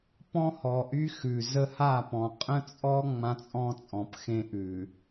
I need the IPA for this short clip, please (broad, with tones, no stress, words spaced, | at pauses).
pɔ̃˦hɔ˨ʔy˦ xʉ˨ zə˦ha˦˨pɔ̃˨ qʼə̃˦t͡sʼɔ˦ ŋ͡mã˦t͡sʼɔ̃˦t͡sʼɔ̃˨p xẽ˦ʔʉ˨